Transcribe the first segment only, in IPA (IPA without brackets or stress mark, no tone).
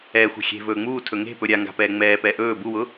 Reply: ɛː